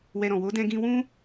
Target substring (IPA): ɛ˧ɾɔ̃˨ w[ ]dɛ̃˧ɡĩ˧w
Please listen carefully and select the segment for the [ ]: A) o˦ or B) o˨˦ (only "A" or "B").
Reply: B